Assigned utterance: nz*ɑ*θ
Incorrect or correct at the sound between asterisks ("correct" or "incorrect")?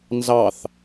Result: correct